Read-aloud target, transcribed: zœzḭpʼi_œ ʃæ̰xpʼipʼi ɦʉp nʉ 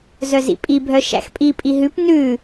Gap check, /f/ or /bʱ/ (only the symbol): bʱ